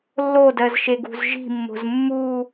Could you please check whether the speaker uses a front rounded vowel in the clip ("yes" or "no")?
no